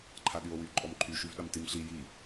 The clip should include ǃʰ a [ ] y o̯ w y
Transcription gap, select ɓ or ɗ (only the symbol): ɗ